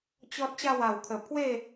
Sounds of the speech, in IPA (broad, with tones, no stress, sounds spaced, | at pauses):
t͡ɕ ɔ˦ t̚ ɕ a˥˧ w a˨˩ w kʰ ə˨˩ pʰ w e˥˧